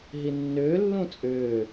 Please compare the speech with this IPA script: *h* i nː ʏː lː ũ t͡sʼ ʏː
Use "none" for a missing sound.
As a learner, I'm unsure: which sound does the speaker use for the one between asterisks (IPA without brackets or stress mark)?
ɦ